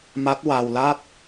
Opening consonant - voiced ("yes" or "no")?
yes